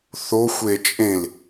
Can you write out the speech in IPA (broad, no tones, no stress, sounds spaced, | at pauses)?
θ o xʷ e t͡ʃʼ ẽ l